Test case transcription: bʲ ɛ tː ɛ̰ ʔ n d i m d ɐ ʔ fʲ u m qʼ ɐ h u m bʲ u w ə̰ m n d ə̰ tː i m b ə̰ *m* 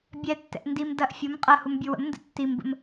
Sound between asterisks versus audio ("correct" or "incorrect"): correct